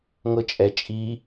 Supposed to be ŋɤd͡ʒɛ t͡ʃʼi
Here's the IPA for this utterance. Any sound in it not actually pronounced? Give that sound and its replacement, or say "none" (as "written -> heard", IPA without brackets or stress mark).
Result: d͡ʒ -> t͡ʃʼ